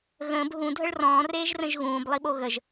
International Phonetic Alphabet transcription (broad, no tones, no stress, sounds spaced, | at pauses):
ɣ ə̃ː b ɦ ũ dʱ ə ɭ r ɔ̃ː r eː ʒ r ə̃ ʒ ɣ ũː b lˠ i ɓ o ɣ ə ʒ